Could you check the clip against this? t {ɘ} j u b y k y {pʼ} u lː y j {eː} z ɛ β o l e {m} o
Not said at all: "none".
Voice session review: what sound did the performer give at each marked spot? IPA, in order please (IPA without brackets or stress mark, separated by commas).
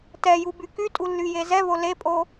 ɛ, tʼ, e, pʼ